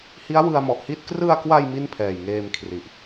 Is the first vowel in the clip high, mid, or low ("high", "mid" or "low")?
high